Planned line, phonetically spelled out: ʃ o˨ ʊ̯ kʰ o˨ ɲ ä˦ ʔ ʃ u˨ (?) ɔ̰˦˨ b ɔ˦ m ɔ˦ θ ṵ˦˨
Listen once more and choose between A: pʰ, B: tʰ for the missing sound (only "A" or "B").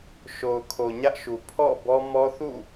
A